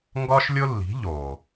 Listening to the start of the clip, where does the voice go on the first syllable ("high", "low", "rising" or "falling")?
high